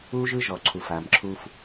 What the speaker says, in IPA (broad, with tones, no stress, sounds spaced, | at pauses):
u˦ ʒ ɯ˦ ʒ ɔ˨ ǀʰ u˨ f a˨ m ǁʰ u˦ f